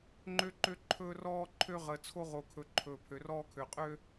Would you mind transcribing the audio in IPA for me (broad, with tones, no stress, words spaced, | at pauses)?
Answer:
ŋ͡ǃø˦ǃø˦ ǃʰɵː˦rɔː˦ ǃʰø˦ ʁəː˨t͡sʰo˦ʁo˨kʰɵ˨ ǃʰɵː˨pʰø˨rɔː˦kʰø˨ qʼø˦